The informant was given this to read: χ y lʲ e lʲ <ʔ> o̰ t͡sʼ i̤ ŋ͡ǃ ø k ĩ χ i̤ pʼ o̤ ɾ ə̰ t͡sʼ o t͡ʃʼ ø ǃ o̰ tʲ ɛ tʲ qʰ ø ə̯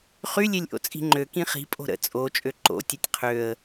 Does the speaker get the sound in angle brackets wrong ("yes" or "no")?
no